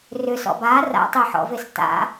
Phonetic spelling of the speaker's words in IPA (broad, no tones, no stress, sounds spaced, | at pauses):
r ʏ s ɔ̰ b a r a̰ tˤ e ħ ɔ̰ v e s t a̰